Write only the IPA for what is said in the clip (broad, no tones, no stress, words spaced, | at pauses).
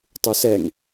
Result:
tˤusɛŋ